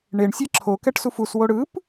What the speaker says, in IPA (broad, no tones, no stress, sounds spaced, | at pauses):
ɳ e ɳ sʲ ɛ ǁʰ o k ɛ ʈ s u f u s w o ɽ ɯ p